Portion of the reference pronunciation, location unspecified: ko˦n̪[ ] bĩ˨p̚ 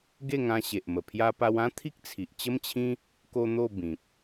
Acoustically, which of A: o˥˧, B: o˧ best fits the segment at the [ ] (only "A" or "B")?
A